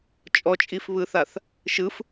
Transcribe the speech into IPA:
t͡ʃʼ ɔ t͡ʃʼ i f β ɯ θ a θ | ʃ ɯ f

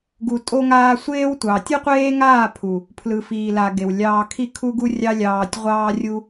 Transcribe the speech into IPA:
ɡ u˨ tʼ o˧ ŋ aː˧ sʷ eː˦ w tʷ ɑ˨ tʲ u˦ qʷ eː˦ ŋ aː˦˨ pʰ u˨ | pʰ l ɯ˨ f iː˨ l a˨ ɡ e˨ w lʲ ɑː˧ kʰ i˦ kʰ u˦ ɡ u˦ rʲ ɑ˦ lʲ ɑː˧ tʲ ʁʷ ɑː˦ rʲ u˦

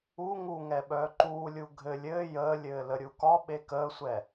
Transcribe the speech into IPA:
u ŋ u ŋ ɛ ɓ œː ǃ uː lʲ u ɡʱ ɘ lʲ ɘː j əː lʲ ɘː l ə ɾʲ u k ɒ ɓ e k əː sʷ ɛ

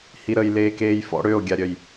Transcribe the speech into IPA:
h i ɾ ə j l eː k eː j f ɔ̰ ɽ ø o̯ ɡʲ a ɾʲ œ j

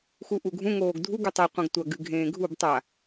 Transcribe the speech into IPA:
x u ʔ u ɡʱ ũ ŋ oː ɡ dʱ u ɡ ʉ tˤ ɵ qʷ ɐ̃ ɡ tʷ ɐ ɡ ɨ ɡʱ ẽː ɡʱ u b tˤ a

